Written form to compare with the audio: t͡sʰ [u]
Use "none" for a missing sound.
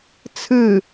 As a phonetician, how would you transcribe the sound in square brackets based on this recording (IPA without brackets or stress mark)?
ɯ